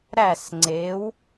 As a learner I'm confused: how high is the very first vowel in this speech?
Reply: low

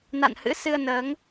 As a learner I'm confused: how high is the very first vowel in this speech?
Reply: low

